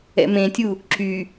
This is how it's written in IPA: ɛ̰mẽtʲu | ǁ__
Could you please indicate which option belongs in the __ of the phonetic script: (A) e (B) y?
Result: B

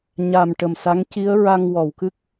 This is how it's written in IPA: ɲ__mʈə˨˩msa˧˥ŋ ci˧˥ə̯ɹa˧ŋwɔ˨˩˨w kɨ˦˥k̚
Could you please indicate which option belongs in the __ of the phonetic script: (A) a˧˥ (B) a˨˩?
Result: B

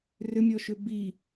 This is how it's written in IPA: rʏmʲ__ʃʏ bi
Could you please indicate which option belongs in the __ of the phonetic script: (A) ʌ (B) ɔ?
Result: B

